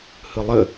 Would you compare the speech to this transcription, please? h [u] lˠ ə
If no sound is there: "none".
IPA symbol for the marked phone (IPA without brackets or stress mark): ɯ